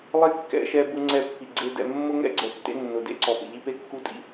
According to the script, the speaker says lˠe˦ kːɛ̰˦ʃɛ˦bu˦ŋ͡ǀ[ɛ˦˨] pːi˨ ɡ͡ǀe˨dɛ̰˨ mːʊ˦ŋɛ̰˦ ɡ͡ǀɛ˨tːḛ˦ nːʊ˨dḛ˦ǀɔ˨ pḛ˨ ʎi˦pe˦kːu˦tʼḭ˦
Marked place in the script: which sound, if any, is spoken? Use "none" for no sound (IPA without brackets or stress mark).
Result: ɛ˦˨